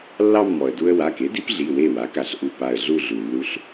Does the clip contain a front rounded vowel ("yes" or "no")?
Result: no